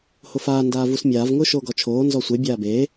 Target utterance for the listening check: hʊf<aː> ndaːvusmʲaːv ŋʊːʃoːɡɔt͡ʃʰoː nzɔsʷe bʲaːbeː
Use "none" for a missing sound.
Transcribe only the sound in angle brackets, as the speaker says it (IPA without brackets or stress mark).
aː